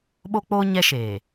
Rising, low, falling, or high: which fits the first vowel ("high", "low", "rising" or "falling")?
high